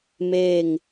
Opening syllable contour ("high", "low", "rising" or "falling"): falling